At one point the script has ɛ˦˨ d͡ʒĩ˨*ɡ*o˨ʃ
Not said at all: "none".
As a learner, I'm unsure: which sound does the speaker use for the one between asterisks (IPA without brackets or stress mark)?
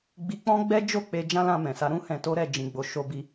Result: ɡ͡b